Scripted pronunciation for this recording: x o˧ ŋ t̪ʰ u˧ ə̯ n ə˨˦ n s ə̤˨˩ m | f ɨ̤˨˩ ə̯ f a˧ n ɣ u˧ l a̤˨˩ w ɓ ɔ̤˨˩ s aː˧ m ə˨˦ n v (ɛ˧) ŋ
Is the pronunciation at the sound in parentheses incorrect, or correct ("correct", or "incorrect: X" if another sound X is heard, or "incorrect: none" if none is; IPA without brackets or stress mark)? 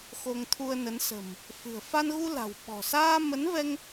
correct